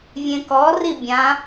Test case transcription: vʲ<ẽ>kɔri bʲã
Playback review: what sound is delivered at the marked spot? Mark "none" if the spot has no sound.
ẽ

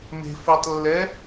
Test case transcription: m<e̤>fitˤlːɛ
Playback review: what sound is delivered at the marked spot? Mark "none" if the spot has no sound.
e̤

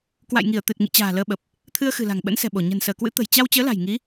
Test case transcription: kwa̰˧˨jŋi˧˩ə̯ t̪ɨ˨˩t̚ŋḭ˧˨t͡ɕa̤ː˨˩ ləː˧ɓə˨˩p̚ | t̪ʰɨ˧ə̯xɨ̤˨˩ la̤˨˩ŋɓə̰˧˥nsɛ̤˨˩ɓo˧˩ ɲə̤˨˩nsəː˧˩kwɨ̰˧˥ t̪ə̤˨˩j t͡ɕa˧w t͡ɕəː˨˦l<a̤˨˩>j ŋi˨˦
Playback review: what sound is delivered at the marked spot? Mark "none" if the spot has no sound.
a̤˨˩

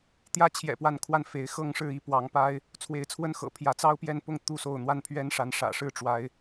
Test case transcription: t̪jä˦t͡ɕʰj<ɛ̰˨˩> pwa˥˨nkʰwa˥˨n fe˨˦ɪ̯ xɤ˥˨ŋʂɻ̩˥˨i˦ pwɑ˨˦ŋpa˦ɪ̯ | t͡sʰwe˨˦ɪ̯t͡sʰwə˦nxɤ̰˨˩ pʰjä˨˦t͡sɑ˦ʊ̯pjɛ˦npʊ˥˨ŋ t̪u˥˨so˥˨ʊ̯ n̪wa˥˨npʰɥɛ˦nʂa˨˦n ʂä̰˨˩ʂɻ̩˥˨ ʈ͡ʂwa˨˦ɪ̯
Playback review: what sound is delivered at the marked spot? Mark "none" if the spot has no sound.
ɛ̰˨˩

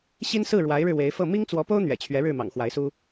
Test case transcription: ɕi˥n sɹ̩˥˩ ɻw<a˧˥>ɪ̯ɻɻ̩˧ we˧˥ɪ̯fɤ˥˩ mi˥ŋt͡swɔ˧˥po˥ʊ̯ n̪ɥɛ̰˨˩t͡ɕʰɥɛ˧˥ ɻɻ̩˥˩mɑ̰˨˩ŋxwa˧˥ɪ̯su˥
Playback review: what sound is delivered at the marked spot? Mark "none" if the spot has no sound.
a˧˥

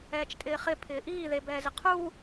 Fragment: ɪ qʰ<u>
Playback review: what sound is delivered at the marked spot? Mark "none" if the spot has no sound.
u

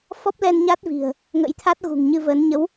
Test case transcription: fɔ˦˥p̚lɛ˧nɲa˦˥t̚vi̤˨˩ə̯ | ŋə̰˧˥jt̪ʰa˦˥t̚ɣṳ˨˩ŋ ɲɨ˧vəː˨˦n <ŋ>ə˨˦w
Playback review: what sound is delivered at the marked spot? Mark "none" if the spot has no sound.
ɲ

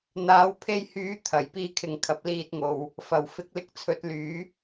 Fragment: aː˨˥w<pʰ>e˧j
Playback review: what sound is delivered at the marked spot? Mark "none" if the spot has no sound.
pʰ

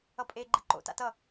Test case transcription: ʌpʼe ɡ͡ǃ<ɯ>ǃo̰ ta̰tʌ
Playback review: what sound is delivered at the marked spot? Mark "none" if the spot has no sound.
ɯ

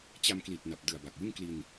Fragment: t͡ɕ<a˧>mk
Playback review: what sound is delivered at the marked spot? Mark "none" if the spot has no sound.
a˧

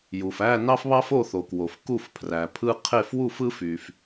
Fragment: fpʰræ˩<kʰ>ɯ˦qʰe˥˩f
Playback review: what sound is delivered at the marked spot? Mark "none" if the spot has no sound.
pʰ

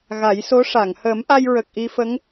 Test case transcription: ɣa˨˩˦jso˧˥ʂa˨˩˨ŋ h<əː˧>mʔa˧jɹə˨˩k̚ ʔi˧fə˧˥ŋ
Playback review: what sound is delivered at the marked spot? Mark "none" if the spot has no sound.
əː˨˩˦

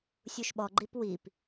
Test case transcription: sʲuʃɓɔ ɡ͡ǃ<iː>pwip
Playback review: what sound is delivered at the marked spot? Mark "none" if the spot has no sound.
i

